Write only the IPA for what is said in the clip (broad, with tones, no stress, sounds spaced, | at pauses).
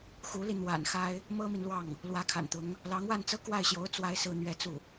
x u˧˥ l i˧ n̪ w a̰˨˩ n x a˥ ɪ̯ | m ɤ˥ m i˨ n l w ɑ˥˩ ŋ | l w ä˧˥ kʰ a̰˨˩ n t̪ ʊ˧˥ ŋ | l ɑ˧˥ ŋ w a˥˧ n t͡s ɤ˥˧ k w a˥˩ ɪ̯ ɕ j o˧˥ ʊ̯ t͡s w a˥ ɪ̯ s ɹ̩˥˧ n̪ ɥ ɛ˥˧ t͡s u˥˩